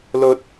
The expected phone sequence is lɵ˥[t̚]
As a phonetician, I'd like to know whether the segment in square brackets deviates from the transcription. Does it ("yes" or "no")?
no